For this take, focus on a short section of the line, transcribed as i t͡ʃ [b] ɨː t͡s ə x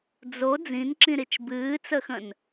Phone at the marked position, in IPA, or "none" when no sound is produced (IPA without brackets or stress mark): b